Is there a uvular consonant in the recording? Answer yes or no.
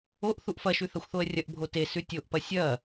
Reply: no